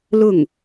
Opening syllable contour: falling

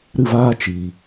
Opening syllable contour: falling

